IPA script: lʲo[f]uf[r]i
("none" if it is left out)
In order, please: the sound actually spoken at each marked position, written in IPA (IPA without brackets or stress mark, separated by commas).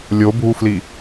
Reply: bʱ, l